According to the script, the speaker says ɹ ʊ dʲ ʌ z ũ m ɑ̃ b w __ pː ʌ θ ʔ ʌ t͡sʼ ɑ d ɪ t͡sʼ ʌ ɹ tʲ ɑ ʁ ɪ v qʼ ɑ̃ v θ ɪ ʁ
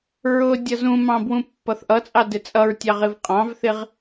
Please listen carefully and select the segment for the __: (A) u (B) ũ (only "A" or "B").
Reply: B